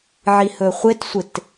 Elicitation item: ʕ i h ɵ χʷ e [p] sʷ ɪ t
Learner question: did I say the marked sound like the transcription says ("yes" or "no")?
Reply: no